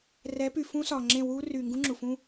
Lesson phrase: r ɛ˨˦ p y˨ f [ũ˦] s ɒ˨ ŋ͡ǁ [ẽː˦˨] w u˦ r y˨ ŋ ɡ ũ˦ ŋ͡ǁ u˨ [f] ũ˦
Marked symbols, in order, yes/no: yes, no, yes

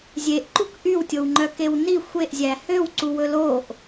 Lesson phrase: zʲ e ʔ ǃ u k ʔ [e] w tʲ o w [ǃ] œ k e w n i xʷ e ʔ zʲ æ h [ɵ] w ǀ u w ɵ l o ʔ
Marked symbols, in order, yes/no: no, no, no

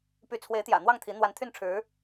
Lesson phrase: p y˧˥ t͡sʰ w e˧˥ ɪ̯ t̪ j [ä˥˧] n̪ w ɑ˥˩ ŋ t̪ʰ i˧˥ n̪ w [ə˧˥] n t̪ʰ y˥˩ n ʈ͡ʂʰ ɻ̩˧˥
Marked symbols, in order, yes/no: no, no

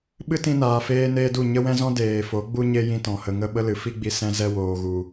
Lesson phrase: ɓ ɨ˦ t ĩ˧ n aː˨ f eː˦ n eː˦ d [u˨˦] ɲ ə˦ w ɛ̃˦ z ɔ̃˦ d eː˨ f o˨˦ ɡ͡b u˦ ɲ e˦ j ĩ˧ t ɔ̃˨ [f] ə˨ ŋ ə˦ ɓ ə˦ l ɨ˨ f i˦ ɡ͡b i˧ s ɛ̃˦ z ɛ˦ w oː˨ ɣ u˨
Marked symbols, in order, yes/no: no, no

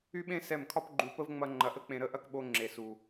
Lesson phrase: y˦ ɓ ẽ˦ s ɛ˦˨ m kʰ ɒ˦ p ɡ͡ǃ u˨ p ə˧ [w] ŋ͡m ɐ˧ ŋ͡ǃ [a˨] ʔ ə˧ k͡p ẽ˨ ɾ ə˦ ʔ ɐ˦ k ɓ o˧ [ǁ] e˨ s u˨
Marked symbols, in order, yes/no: no, no, no

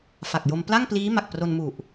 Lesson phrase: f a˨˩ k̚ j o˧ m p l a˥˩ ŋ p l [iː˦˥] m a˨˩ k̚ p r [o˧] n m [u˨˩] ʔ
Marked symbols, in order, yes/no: yes, yes, yes

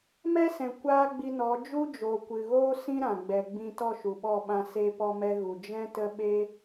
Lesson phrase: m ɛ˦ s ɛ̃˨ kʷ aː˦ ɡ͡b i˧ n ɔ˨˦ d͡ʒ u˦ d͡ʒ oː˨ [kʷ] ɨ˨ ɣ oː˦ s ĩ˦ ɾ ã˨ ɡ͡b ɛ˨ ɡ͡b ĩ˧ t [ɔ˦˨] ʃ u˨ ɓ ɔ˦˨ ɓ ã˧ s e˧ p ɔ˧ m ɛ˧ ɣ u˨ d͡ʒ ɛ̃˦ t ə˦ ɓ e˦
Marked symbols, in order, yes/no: yes, yes

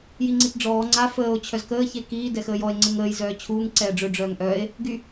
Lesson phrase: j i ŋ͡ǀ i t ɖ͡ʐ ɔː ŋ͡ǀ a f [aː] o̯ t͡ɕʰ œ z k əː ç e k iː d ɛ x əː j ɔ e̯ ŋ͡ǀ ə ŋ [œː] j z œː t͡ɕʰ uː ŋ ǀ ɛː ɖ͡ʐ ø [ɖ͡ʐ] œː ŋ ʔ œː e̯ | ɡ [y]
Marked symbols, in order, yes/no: no, no, yes, yes

